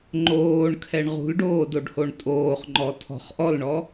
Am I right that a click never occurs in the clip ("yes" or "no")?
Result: no